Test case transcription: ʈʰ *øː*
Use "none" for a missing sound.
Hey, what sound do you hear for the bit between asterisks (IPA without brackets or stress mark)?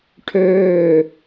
øː